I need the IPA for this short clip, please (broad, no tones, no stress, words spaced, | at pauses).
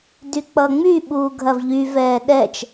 dyk͡pʌːŋ͡myɓuː ɡʱɐvʎy vɛːɗɛt͡ʃ